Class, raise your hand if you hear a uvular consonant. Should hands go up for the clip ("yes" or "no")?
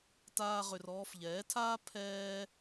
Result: yes